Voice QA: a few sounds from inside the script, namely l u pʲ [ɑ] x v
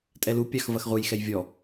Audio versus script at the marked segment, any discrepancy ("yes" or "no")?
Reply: no